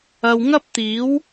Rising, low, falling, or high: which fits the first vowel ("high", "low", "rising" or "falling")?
low